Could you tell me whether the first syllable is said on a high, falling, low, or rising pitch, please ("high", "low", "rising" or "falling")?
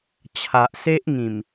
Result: low